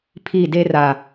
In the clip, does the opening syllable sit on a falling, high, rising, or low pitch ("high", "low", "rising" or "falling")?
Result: falling